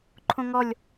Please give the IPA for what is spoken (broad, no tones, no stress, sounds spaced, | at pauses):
ǃʰ õ ŋ ɔ lʲ